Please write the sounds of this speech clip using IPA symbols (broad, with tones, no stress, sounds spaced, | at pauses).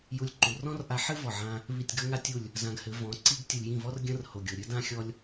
j u˧ lʲ ǃ u˨ r ɔ̃˦ r ʔ a˧ ħ ɨ˦ v ɔ˨ ʕ ã˧ | β i˦˨ tʲ ɡ ɐ˦ ŋ a˦ tʲ u˦˨ lʲ | z ã˧ ɡ h ɘ˨˦ v ɔ̃˨˦ ǀ i˧ ɡ tʲ u˨ lʲ j ĩ˦˨ v ɔ˦ r ɡʲ ɐ̃˦ r h o˨ ɡʲ o˨ ɾʲ ɨ˧ d ã˧ xʲ ɔ˧ lʲ